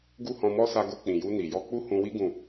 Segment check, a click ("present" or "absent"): absent